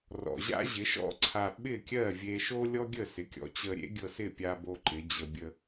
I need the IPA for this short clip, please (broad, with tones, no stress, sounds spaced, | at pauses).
r ɔ̰˩ ʑ a̰˥ ʑ ɪ˩˥ ʃ ɔ̰˥ ǀʰ a˧ ɓ ɪ˥˩ kʲ ɜ˥˩ vʲ e˧ ʃ o˥ lʲ ɔ˥ ɡʲ ə˥˩ s ɪ˩˥ kʲ ɔ̰˩˥ t͡ɕ ə˧ ɾʲ ḛ˥ ɡʲ ɤ˧ s ɪ˥˩ pʲ a˧ b o˧ ǃ ɪ˩˥ d͡ʑ ə˧ bʲ ə˧